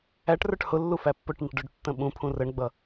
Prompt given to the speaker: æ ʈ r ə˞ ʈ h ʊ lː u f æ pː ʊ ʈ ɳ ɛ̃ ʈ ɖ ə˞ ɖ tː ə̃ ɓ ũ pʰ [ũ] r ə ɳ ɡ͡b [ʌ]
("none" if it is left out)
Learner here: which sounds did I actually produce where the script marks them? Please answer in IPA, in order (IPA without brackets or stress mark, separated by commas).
ũ, ʌ